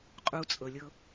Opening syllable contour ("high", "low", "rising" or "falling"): low